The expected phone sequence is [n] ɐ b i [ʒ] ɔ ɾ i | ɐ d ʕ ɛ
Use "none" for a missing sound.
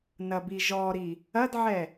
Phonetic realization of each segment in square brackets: n, ʒ

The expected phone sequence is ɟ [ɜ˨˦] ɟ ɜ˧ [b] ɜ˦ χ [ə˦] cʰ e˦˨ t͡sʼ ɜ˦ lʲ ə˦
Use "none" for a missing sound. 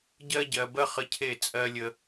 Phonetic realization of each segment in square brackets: ɜ˦, b, ə˦

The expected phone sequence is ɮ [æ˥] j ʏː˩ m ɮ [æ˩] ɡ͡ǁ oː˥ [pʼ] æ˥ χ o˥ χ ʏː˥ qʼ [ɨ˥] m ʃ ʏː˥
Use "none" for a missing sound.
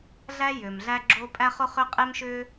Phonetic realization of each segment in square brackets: æ˥, æ˥, pʼ, e˥

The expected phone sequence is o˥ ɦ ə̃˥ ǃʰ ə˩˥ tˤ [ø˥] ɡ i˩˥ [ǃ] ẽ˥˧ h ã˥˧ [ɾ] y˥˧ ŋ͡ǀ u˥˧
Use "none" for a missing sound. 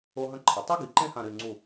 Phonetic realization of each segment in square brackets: u˥, ǃ, ɾ

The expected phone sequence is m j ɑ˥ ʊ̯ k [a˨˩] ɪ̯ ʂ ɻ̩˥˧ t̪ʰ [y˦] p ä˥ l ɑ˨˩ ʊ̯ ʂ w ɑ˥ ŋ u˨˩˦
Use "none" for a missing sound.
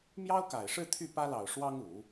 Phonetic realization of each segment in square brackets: a˨˩, y˥˩

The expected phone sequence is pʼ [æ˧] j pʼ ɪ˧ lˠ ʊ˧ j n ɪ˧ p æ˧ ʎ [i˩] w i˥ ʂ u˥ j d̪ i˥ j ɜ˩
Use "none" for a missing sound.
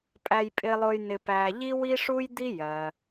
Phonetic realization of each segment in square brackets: æ˧, i˥

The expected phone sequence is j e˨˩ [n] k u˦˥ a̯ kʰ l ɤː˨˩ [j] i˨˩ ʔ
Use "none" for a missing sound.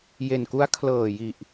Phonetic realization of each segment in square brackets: n, j

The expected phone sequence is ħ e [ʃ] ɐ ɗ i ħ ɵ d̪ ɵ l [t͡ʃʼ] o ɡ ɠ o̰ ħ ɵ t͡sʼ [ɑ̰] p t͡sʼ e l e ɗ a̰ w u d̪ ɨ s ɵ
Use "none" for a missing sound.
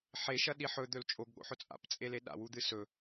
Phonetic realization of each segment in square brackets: ʃ, t͡ʃʼ, a̰

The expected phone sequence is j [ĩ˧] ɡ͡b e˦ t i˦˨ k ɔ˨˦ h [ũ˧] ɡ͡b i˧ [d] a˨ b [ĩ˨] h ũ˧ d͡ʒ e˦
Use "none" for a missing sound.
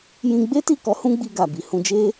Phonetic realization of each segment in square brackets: ĩ˧, ũ˦, ɡ, i˨

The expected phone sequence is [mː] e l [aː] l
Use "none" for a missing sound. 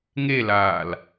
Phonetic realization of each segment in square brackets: ŋ, aː

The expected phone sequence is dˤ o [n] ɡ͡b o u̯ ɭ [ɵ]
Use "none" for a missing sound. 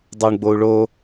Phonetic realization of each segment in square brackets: ɳ, o

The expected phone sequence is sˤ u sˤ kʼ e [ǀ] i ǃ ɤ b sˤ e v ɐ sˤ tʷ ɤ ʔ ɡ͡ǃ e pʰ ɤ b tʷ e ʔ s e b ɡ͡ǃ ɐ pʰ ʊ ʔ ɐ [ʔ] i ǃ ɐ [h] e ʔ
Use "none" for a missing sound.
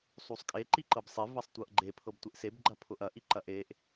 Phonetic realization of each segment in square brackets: ǃ, ʔ, ʔ

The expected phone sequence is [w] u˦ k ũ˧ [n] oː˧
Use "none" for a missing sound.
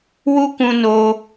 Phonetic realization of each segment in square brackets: w, n

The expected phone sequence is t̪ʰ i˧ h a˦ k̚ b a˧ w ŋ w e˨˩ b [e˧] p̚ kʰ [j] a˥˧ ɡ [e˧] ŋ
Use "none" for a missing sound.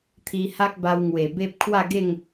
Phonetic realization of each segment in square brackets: e˦, w, e˥˧

